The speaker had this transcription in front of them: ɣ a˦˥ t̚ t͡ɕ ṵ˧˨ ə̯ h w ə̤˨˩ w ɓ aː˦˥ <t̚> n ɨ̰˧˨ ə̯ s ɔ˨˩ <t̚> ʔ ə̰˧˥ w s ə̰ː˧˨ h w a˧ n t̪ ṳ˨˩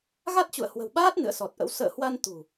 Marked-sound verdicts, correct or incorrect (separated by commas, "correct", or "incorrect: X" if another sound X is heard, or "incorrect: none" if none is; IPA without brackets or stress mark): correct, correct